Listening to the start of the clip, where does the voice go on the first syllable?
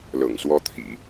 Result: low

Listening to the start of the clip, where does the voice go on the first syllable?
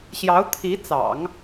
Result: rising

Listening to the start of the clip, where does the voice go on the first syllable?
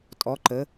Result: rising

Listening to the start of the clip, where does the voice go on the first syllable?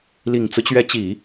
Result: low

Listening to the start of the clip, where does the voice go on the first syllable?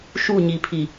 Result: falling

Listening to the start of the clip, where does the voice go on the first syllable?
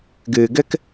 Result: low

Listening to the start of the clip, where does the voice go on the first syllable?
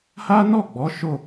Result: high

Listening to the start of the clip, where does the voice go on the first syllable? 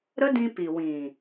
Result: high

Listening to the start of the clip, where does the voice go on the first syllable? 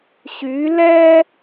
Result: rising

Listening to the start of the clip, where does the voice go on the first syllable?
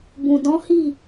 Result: low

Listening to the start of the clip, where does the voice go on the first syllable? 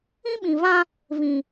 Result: high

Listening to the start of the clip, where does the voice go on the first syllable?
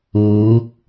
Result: rising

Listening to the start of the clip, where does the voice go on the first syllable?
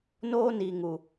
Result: high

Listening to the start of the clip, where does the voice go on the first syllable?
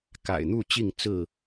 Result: low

